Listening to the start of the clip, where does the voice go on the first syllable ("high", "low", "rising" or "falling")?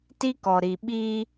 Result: high